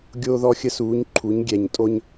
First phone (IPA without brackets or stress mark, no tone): ɡʲ